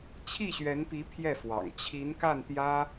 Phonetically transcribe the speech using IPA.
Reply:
t͡ɕʰ i˥˩ ɕ ɥ ɛ˧˥ n p i˧˥ pʰ j ɛ˥˩ f w ɑ̰˨˩ ŋ t͡ɕʰ i˧˥ n k a˥˩ n t̪ j ä˥

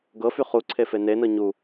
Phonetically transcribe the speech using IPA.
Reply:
ɡ ɤ f y χ u ǀʰ e f e n e n ɤ ɲ u

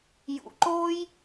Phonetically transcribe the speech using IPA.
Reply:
j ṵ˧ ǃ oː˦ j

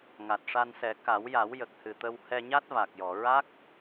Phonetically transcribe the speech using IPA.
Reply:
ŋ a˨˩ t̚ ʂ a˧ n s ɛ˨˩˦ k a˨˩˦ w j a˨˩˦ w j ə˨˩ k̚ h ɨ˨˩ t̪ ə˧ w h ɛ˧ ɲ a˦˥ t̚ v a˨˩ k̚ j ɔ˨˩˨ ɹ a˦˥ k̚

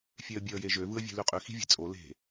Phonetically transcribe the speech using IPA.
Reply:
fʲ e ə̯ bʲ e ə̯ j e ʒ ø v ɯ ə̯ vʲ e̤ l y qʼ y x i̤ vʲ e̤ t͡sʼ o l e̤

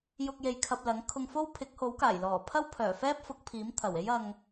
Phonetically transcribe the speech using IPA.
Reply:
j ʊ˧ k̚ j e˧ j kʰ ɐ˧ p̚ l ɐ˨˥ ŋ kʰ ʊ˧ ŋ f o˥ w pʰ ɪ˨˥ k̚ h o˨˥ w k aː˨˩ j l ɔː˨˩ pʰ ɐ˥ w pʰ œː˨˩ f ɛː˥ p̚ f ʊ˨˥ k̚ pʰ iː˨˥ m t̪ʰ ɐ˨˩ w e˥ j ɐ˧ ŋ

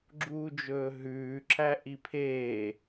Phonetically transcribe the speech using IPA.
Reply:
ɡ͡ǁ uː d͡ʒ ɵː ɦ ʉː ǁ æ ʔ i pʰ eː

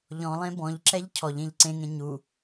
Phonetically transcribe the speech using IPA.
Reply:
ʎ ɔ̃ lˠ ẽ b ɔ̃ ʎ ǁ ɛ ʎ cʰ ɔ ʎ ẽ ʎ ǀ ẽ ŋ ẽ ɲ u

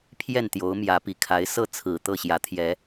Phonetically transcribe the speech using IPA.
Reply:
pʰ j ɛ˥˨ n t̪ j o˨˦ ʊ̯ m j ä˨˦ p i˨˩ kʰ a˨˦ ɪ̯ s ɤ˥˨ t͡sʰ ɹ̩˨˩ t̪ ɤ˥˨ ɕ j ä˨˦ t̪ʰ j ɛ˨˦

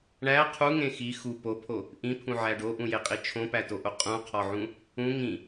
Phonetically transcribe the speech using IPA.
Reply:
ɳ æ qʰ u ŋ ẽ x i x u p o pʰ o | ʔ ĩ pʰ ũ ʕ æ ɖ o ʔ ũ j e qʼ i t͡ʃʰ õ p æ t o ʔ o qʼ ũ qʰ ɒ ʕ ũ | ũ ŋ ĩ

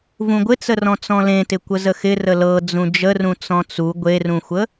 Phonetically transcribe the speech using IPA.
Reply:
v ũ ɡʷ ɪ t͡s ə r ɔ̃ t͡s ɔ̃ l ẽ t ɪ kʷ ə z ə x ɪ r ə l ɤ d͡z ũ d͡ʒ ə r ũ t͡s ɔ̃ t͡s u ɡʷ e r ũ xʷ ə

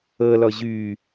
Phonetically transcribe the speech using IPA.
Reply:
ɤ l ɔ ʑ y

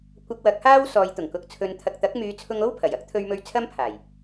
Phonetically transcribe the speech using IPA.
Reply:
kʷ ɐ˧ k̚ w ɐ˨˥ k̚ h aː˥ w s ɔː˨˧ j t̪ ʊ˨˩ ŋ k ʊ˧ k̚ t͡sʰ ɵ˧ n t̪ʰ ɐ˧ k̚ t̪ ɐ˨˥ k̚ m yː˨˧ t͡sʰ ʊ˧ ŋ o˥ w pʰ ɐ˨˩ j ɐ˥ k̚ t̪ʰ ɵ˧ ɥ m ɵ˧ ɥ t͡sʰ ɐ˥ m pʰ aː˨˩ j

